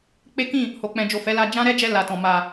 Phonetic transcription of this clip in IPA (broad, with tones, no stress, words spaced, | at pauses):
k͡pe˦kĩ˦˨ | ho˨k͡pɛ̃˨d͡ʒo˨ fɛ˨˦la˧ d͡ʒã˦ɾɛ˦d͡ʒɛ˧ la˨tɔ̃˨ ma˨